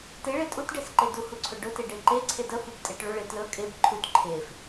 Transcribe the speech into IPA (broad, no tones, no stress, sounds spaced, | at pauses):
t e ɭ e tʼ u t ɖ e s ǃ e d u h u ǀʰ ɵ ɖ ɵ t e ɖ e ǃ e ǀʰ e d ə f u b tʼ e ʈ ɭ ɵ ɭ e t l ɵ kʼ e b ǃʰ u t ǃʰ e f